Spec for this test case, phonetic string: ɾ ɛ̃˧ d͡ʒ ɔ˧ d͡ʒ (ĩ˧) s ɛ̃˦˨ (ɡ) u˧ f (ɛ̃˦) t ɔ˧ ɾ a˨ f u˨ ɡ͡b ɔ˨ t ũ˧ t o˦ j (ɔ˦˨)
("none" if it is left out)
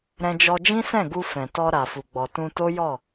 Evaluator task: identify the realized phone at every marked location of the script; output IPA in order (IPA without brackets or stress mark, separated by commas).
ĩ˦, ɡ, ɛ̃˨, ɔ˦˨